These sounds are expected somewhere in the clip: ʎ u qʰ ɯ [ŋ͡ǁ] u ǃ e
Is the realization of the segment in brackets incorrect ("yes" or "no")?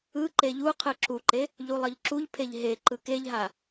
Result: yes